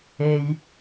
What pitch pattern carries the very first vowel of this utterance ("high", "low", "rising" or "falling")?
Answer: low